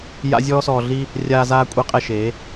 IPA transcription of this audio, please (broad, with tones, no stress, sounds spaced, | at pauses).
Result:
j a̰˧ zʲ ɔː˧ s ɔː˨ ɮ i˧ | rʲ aː˧ z aː˧ kʷʼ i˨˦ qʼ ɛ˨ ʃ eː˨˦